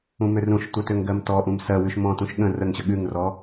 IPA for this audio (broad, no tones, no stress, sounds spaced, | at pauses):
ũ m ø r ũ ʃ tʷ ɜ t ø ŋ ɡ ɜ m t ɔ ʔ ũ m s ɜ w ʉ ʃ m ɔ̃ t ũ ʃ ɠ ə̃ r ə ŋ ɕ ə ɠ ʉ ŋ r ɔ